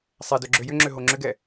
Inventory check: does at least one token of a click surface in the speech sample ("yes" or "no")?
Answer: yes